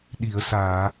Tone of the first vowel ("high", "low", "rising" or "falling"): low